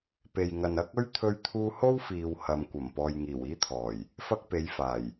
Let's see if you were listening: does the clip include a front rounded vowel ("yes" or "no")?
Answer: no